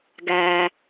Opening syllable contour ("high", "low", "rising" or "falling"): low